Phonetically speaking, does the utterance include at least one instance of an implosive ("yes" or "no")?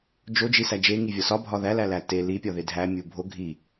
no